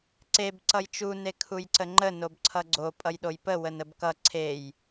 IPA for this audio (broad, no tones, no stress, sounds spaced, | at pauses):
ǀ e b ǀ ʌ j t͡ʃ u n e kʰ u j ǀ ə ŋ͡ǃ ə n o b ǀʰ ʌ ɡ͡ǀ o pʼ ʌ j ɗ o j p ə w ə n ə b k ʌ ǀʰ e j